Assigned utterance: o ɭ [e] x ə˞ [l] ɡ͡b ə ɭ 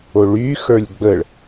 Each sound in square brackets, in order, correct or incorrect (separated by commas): incorrect, incorrect